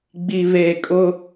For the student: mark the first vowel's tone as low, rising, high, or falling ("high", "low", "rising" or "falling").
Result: low